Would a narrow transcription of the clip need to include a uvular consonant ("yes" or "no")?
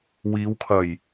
no